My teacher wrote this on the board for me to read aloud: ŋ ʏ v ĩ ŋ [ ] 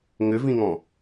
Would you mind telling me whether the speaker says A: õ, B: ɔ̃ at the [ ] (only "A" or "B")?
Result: B